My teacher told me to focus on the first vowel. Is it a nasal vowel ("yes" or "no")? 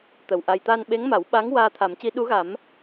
no